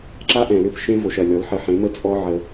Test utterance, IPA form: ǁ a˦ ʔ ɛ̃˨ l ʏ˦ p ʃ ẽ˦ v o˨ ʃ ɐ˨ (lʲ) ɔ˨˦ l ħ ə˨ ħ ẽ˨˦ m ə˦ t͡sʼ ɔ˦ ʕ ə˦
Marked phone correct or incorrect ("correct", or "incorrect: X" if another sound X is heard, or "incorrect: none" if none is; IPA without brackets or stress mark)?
correct